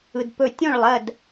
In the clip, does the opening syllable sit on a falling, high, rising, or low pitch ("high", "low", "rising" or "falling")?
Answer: low